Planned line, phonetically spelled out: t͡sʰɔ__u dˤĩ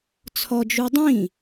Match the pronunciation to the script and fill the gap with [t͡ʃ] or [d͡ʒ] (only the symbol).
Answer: d͡ʒ